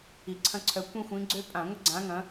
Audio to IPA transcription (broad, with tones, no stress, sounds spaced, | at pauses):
i˨˩ ǀʰ ɐ̃˦ ǀʰ œ˨˦ kʷ ĩ˦ xʷ ĩ˨˦ ɡ͡ǀ ø˦ pʼ ã˧˩˧ ŋʷ ɪ˦ ɡ͡ǀ ã˨˦ ŋ ɐ̃˨˦